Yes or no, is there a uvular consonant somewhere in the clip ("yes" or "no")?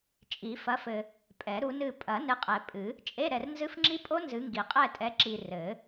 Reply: yes